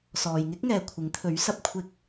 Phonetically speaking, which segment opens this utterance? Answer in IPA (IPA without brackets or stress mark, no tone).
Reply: s